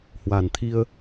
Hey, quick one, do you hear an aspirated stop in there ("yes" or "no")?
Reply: yes